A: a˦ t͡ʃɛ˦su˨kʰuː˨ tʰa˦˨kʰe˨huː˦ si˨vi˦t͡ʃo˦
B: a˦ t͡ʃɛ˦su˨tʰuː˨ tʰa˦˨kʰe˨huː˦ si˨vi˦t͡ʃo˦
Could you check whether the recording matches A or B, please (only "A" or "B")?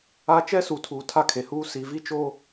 B